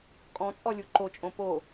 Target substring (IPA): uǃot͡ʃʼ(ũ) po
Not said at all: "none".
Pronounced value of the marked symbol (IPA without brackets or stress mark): õ